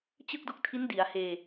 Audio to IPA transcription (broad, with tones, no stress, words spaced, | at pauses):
t͡ɕɯ˥˩k̚do˦˥k̚ tʰi˦˥ndi˩˦a̯heː˧